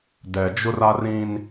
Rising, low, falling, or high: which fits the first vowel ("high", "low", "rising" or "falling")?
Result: low